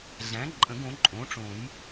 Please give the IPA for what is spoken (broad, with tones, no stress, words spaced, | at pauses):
ɮæ̃˩˥ǃʼə̃˨˩˦ɡ õ˩˥ǃʼõ˩˥ʈ͡ʂõ˨˩˦j